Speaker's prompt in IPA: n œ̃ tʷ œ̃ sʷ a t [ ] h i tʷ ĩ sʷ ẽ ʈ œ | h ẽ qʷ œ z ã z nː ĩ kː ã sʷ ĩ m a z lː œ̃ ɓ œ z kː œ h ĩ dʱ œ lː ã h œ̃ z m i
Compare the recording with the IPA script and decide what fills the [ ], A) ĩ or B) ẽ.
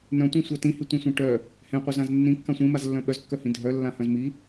A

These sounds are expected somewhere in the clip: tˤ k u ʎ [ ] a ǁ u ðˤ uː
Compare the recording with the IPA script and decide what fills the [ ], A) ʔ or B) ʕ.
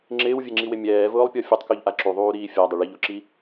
A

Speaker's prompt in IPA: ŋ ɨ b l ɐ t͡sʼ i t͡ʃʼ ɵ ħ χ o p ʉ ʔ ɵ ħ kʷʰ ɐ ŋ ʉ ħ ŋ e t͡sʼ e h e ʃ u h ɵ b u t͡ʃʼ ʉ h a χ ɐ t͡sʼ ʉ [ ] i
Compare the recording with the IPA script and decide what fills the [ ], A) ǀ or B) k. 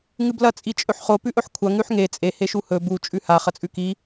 B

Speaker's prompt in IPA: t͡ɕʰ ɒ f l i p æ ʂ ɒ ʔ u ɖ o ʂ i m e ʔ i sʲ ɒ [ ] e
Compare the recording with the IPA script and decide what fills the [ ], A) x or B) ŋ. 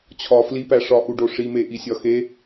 A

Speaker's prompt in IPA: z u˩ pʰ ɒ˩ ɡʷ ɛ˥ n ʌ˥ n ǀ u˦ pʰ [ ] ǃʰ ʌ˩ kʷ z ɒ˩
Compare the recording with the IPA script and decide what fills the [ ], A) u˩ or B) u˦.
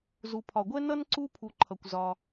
A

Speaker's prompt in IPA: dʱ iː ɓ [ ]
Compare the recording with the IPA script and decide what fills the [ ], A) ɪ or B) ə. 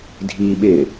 A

